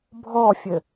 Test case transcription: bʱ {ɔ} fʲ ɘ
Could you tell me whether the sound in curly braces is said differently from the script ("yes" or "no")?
no